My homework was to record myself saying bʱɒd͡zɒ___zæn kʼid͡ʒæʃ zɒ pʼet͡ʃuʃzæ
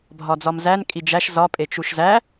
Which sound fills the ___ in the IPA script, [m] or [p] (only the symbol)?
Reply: m